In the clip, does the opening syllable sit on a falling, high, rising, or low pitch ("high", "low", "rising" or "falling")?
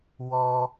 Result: high